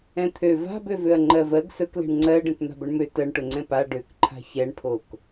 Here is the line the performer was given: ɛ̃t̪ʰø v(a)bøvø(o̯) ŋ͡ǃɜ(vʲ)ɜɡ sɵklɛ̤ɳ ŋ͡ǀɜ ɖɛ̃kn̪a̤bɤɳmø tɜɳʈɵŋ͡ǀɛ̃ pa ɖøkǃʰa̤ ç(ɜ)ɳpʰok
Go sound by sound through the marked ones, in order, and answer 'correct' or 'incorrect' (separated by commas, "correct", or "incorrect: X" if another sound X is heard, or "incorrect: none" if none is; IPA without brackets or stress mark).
incorrect: a̤, incorrect: ɐ̯, incorrect: v, incorrect: ɛ